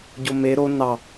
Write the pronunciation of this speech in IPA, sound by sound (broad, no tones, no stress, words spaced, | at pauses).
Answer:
ɟome ɾo nɑ